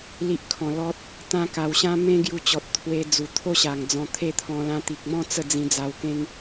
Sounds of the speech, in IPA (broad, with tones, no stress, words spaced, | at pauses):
li˦ʔkʰɔ̃˧ lɔ˦t̚ | t̪ã˦ka˧wɕã˦ mẽ˦ɡju˧t͡ɕɔ˨t̚ t̪ʰwe˧ d͡zu˨˩t̪ʰo˥˧ɕa˨˩ŋd͡zɔ̃˨˩ t̪ʰe˦t̪ʰɔ̃˧ lã˧ t̪i˨k̚mɔ̃˥˧ t͡sə˥˧d͡zĩ˧d͡za˧wkẽ˦ŋ